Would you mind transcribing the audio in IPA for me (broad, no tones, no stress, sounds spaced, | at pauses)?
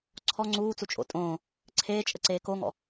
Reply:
ǀʰ ɔ ŋ͡ǀ uː t͡s u t͡ʃʼ o̰ tʼ õː | ǀʰ eː t͡ʃʼ ə ǀ eː k o ŋ ɔ̰